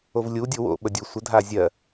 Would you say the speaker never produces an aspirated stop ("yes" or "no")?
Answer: yes